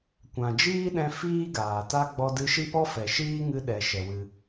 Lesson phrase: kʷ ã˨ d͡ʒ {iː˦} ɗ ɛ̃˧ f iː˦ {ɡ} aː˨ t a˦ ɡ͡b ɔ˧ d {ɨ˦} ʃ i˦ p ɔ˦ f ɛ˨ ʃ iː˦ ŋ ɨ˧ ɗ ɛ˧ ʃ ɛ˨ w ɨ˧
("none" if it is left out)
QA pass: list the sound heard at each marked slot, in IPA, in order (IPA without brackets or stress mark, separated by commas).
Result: iː˦, ɡ, ɨ˧